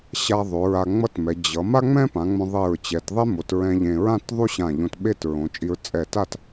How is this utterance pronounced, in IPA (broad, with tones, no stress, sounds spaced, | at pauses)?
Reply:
ɕ a˧ ðˤ o˩˧ ɹ a˧ ŋ͡m ʌ˥ t m ɛ˩˧ d͡ʑ ʌ˩˧ m a˥ ŋ͡m ɛ̃˥ p ã˩˧ ŋ͡m õ˧ ðˤ e˧˩ ɹ t͡ɕ ɛ˩˧ t ðˤ e˥ m o˩˧ t ɹ ɛ̃˧ ʎ ẽ˧ ɹ ã˥˧ t ðˤ u˥ ɕ ã˧˩ ʎ õ˧ t ɓ e˥˧ t ɹ õ˩˧ t͡ʃʼ i˧ ɹ t͡sʼ ɛ˧˩ t a˥˧ t